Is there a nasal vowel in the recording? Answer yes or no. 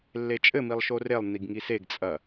no